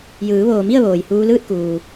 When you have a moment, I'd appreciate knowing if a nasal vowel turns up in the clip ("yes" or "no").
no